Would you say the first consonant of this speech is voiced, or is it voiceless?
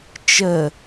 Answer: voiceless